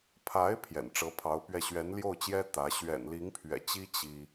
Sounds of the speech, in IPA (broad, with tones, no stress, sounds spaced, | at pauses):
pʰ a˧˥ ɪ̯ pʰ j ɛ̰˨˩ n ʈ͡ʂ ɤ˧˥ pʰ ɑ˧˥ ʊ̯ p ɥ ɛ˥˩ ɕ ɥ ɛ˧˥ n l j o˥˩ ʊ̯ t͡ɕ j ɛ˥ t̪ ä˧˥ ɕ ɥ ɛ̰˨˩ n l i˧˥ ŋ pʰ ɥ ɛ̰˨˩ t͡ɕ i˥ t͡ɕ i˥